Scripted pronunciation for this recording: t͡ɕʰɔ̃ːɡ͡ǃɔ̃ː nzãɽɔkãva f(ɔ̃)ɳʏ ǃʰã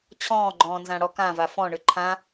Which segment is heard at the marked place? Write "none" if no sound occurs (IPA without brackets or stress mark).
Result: ɔ̃